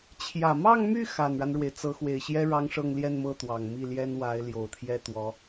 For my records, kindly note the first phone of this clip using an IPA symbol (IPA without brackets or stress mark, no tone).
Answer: t͡ɕʰ